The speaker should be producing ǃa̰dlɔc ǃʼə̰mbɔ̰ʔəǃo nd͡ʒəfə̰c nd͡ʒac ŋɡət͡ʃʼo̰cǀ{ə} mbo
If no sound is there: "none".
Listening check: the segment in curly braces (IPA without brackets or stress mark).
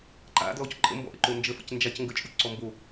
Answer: ɔ